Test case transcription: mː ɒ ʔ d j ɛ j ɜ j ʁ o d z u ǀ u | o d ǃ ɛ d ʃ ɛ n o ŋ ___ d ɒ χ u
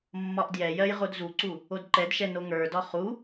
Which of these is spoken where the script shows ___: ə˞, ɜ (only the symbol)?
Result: ə˞